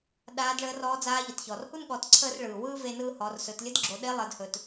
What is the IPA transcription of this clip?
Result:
ɗaː˧˥dɭəː˧˥rɔː˧˥d͡zaː˧˥ ʎə˩tçɔː˩rhu˥n ɠɔ˩˧tǀʰəː˧r ɭɯː˩ wɯː˥ve˧nɯː˧ hɔ˩˧rsɵ˩˧t lʲə˧˥dɡ͡ǁo˩˧ ɗe˧˥lˠəː˩˧dhɵ˩t

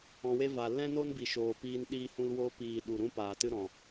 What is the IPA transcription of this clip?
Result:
ɔ̃˧we˦ va˧ lɛ̃˦no˦nbi˨ʃoː˨ piː˧n ɗiː˧hũ˧l wo˧piː˨ ɗu˨ɾũ˦ paː˨tɨ˦ɾɔ̃˨

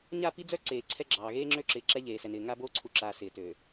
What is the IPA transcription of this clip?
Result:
ɲa˦˨pi˦d͡zœ˦ ǀeː˨ǀʰɛ˦ɡ͡ǁɑː˨ ɣeː˦ŋ͡ǁø˦ǁɪː˨ ǁɛ˦ʎeː˨sɛ˨nɪː˨ ŋa˦boː˦ǀʰu˨ǁaː˨ sɪː˨tøː˨

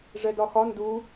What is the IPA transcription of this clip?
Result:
ʐɛdɒxɒ ndu

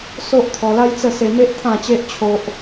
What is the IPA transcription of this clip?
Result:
so˦ʔt̪ʰɔ˧la˦jt͡sə˥˧ se˧me˦ʔ t̪ʰã˥˧t͡ɕe˦ʔ t͡ɕʰo˦ʔ

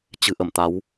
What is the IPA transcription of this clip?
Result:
t͡ɕɨ̤˨˩ʔə˧˩m t̪a˨˦w

